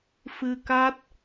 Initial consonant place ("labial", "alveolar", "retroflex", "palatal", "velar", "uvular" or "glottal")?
labial